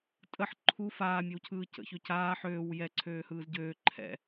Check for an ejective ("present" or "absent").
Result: present